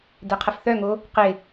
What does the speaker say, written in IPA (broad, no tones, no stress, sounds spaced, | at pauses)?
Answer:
d ɛ qʰ ə f θ œ ŋ o | q ɪ